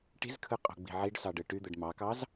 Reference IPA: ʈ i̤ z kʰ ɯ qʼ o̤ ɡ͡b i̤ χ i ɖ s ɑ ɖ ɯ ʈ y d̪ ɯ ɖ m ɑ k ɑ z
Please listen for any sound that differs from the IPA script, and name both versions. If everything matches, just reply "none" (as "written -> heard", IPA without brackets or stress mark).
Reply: χ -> ʕ